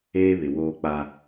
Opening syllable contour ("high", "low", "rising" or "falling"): high